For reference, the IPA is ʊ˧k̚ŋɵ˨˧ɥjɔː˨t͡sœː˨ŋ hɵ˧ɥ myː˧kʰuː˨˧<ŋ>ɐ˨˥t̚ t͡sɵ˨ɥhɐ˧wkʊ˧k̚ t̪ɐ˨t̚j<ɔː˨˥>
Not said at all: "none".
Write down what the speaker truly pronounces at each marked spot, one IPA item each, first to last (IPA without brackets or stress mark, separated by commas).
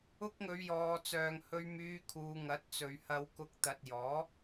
ŋ, ɔː˨˥